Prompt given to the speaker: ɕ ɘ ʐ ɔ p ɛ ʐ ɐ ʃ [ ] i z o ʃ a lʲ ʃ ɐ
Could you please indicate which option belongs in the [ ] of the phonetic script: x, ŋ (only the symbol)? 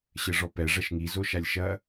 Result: ŋ